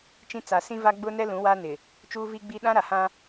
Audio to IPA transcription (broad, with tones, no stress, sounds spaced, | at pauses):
t͡ʃ ĩ˦ t͡s a˨ s ĩ˦ v a˦ ɡ͡b ʊ˦ n ɛ˦ l ũ˨˦ w a˦ n ɪ˨ | t͡ʃ uː˦ v i˦ ɡ͡b i˦ ɗ ã˦ ɾ a˨ h ã˦